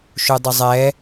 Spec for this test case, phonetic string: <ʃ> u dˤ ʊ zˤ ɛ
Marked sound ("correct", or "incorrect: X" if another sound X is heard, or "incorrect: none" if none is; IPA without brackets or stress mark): correct